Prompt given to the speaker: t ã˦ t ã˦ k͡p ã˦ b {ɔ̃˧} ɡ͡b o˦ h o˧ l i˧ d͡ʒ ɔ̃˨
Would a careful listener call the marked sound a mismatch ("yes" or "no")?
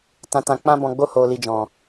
no